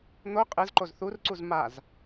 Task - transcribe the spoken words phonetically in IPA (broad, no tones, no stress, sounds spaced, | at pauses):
n̪ o qʼ ɯ z ǃ o z θ u r ǀ u z m a z